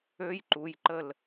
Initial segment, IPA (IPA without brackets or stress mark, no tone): ø